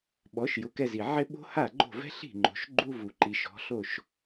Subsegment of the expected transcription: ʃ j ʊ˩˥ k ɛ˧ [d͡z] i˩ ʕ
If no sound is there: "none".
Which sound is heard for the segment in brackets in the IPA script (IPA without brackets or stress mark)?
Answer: z